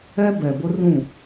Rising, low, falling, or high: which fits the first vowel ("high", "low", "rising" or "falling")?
high